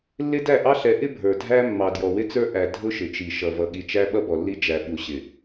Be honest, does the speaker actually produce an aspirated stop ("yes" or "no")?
no